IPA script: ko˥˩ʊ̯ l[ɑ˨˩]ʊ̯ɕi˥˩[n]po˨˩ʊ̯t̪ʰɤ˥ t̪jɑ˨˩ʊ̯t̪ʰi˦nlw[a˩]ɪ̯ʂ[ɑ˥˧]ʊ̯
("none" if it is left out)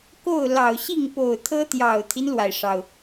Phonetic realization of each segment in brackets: ɑ˨˩, ŋ, a˩, ɑ˩

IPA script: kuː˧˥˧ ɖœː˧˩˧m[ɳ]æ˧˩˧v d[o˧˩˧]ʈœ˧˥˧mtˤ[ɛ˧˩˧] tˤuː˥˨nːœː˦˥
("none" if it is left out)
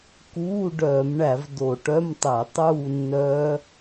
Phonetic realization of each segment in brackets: ɳ, o˧˩˧, ɛ˧˩˧

